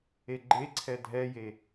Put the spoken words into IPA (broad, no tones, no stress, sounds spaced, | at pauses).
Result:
e ɡ͡ǃ e ǀʰ ɛ dʱ ɛ j e